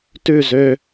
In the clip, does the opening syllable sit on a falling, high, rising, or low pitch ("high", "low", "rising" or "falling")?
falling